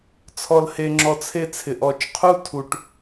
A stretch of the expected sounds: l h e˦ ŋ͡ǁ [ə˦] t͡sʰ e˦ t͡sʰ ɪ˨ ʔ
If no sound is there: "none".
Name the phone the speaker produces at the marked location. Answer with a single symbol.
ɔ˦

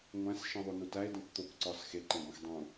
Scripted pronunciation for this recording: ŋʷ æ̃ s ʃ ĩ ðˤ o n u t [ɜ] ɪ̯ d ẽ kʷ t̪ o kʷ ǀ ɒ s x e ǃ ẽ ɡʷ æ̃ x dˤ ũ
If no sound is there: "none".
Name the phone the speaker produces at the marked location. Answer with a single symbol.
æ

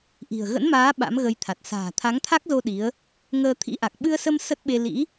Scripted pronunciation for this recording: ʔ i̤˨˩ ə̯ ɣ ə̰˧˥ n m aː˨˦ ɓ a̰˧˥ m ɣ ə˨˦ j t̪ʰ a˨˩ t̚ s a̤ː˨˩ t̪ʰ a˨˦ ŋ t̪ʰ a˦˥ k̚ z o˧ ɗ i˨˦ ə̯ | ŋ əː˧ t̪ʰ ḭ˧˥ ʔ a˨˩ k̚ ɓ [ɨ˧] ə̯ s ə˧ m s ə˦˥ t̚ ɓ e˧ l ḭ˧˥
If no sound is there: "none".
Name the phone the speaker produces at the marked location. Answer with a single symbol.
ɨ˧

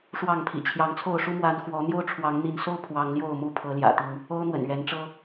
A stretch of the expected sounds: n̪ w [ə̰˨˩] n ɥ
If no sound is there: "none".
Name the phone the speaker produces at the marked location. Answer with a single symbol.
ə̰˨˩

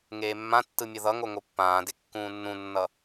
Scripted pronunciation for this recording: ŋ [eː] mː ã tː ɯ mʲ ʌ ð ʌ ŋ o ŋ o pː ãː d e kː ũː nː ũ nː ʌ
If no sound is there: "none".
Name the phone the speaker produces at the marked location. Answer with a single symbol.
eː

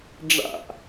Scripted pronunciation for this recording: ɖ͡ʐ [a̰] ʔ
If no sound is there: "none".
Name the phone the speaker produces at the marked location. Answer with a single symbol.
a̰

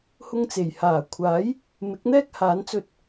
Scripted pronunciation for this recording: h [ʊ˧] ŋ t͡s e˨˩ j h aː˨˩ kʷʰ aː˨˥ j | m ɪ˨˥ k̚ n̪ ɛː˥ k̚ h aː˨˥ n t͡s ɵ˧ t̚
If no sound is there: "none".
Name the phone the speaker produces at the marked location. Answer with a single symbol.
ʊ˧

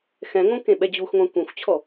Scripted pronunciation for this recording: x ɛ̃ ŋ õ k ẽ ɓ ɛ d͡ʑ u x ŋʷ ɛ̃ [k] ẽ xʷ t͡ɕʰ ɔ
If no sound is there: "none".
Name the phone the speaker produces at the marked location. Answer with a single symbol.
kʷ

